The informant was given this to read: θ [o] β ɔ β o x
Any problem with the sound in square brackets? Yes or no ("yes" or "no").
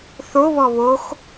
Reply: no